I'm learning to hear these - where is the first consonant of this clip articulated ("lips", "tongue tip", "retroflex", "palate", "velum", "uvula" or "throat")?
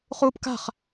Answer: uvula